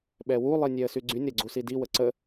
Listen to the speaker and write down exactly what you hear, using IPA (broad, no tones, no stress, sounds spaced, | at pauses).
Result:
ɓ ɛ w u lˠ i nʲ ɛ ə̯ s y ɡ͡ǀ y nʲ ɾ ɛ ɡ͡ǀ u s i d i w ə ǀ ə